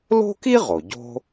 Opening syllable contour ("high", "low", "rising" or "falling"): high